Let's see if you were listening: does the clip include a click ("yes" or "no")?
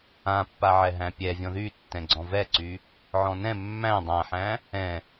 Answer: yes